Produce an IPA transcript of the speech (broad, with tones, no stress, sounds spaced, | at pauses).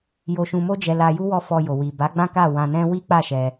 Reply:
j o˧ ʃ ũ˧ m o˦ d͡ʒ ɛ˧ l a˧ j u˦ w ɔ˧ f ɔ˧ j o˨ w i˨ b a˨˦ ɡ͡b ã˦ k a˦˨ w ã˧ n ɛ̃˦ w i˦ k͡p a˦˨ ʃ ɛ˧